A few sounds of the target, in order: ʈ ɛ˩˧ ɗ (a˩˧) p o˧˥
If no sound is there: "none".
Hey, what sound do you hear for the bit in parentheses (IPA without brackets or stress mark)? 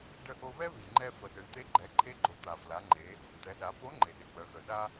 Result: a˩˧